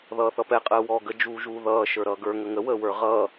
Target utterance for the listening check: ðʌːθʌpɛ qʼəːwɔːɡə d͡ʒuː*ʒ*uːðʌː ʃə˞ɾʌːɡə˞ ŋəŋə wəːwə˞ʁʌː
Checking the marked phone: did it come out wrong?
no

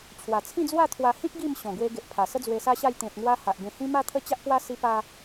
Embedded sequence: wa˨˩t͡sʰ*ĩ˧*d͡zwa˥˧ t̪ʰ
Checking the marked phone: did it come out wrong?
yes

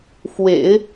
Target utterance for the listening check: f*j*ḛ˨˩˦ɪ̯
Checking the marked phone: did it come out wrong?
yes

